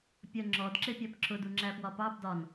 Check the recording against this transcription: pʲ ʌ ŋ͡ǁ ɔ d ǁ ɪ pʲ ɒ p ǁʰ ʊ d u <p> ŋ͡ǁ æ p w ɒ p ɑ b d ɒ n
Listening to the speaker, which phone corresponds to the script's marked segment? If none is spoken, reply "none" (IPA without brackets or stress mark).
none